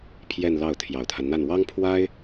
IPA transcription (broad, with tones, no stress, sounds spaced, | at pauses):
pʰ j ɛ˥˧ n l ɑ˥˩ ʊ̯ t̪ʰ j ɑ˨˩ ʊ̯ t̪ʰ a˦ n n̪ a˥˩ n w ɑ˥ ŋ pʰ w a˥ ɪ̯